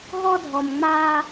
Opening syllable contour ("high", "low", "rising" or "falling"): high